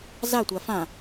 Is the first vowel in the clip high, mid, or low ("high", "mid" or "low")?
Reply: low